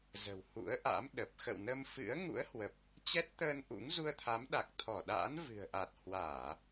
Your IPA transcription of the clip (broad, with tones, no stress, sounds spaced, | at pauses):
z ə̤˨˩ w h ṵ˧˥ ə̯ ʔ a̰˧˥ m ɗ ə˨˩ p̚ x ə̰˧˨ w n ə˧ m f ɨ̰˧˥ ə̯ ŋ ṵ˧˥ ə̯ h w ə˨˩ p̚ | t͡ɕ ɛ˦˥ t̚ t̪ əː˧ n ʔ ṵ˧˥ ŋ z u˧ ə̯ t̪ʰ a˨˦ m ɗ a˨˩ k̚ t̪ʰ ɔ˧˩ ɗ a̰ː˧˥ n v ɨ̤˨˩ ə̯ ʔ a˨˩ t̚ h w aː˧˩˨